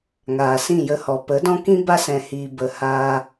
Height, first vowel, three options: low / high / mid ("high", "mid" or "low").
low